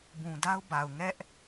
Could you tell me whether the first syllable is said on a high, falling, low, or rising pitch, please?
low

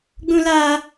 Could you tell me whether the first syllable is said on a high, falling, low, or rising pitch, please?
high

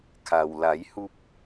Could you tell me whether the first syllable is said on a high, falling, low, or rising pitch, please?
low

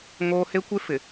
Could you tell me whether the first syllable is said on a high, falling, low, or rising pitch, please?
high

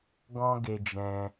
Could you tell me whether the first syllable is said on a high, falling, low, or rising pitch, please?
high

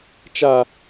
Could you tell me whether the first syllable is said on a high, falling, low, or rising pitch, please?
low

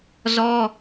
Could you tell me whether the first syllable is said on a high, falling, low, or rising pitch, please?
high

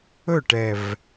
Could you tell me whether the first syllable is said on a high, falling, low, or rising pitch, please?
falling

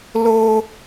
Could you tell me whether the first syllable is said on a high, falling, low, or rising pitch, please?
high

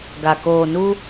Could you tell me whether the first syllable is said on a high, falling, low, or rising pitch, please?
low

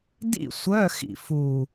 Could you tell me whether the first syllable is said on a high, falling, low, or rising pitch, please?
falling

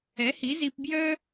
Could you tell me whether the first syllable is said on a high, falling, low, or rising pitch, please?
rising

